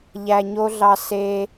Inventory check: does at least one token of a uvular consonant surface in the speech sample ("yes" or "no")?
no